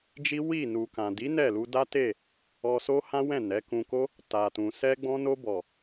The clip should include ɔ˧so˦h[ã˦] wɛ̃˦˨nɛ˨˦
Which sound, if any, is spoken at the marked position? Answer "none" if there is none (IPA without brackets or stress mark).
ã˦